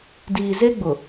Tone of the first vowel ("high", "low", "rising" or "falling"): low